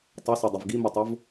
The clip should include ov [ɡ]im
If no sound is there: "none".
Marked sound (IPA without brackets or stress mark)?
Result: ɡ